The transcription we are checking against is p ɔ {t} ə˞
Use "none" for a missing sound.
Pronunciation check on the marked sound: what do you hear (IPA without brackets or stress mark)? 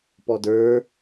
d